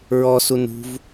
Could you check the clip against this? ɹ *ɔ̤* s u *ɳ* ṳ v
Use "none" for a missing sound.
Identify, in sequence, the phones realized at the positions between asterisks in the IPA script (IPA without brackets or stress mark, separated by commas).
ɔ, n